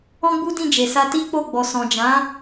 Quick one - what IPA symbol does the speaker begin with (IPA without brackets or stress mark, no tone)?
ɔ̃